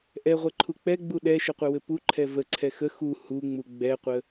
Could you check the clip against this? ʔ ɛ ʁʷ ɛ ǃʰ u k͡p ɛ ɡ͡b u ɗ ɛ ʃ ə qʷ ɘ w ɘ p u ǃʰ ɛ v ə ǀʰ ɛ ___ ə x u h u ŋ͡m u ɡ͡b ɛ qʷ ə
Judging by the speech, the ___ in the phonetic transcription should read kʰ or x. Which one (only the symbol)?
x